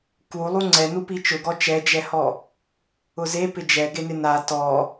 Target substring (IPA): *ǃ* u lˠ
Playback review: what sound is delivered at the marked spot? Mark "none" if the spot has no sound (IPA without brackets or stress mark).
k